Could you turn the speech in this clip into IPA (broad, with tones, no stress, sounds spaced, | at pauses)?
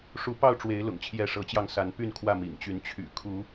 ʂ u˨˦ p ɑ˥˨ ʊ̯ ʈ͡ʂ w e˨˦ ɪ̯ l ʊ̰˨˩ ŋ t͡ɕʰ j ɛ˨˦ ʂ ɤ˨˦ t͡ɕ j ɑ˧ ŋ s a˨˦ n p y˥˨ n kʰ w ä˥˨ m ḭ˨˩ ŋ t͡ɕ y˨˦ n t͡ɕʰ y̰˨˩ kʰ u˨˦